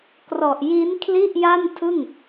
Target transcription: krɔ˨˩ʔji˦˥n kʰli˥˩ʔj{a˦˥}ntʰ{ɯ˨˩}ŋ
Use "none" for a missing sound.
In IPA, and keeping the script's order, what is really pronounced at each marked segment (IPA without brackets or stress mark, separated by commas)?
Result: a˥˩, ɯ˥˩